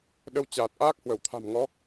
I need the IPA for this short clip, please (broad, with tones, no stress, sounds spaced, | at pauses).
ɗ ə˧ w t͡ɕ aː˨˩ t̚ ʔ aː˦˥ k̚ h w ə˧˩ w t̪ʰ a̤˨˩ m ŋ ɔ˨˦